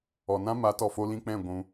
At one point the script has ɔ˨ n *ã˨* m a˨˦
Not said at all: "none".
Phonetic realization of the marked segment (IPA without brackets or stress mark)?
ã˦